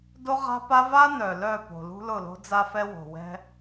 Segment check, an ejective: absent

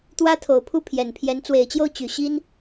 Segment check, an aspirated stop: present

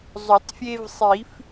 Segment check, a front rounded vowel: absent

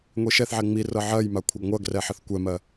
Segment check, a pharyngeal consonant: present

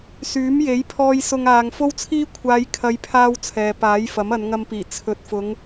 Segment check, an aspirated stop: present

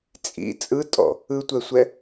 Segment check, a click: absent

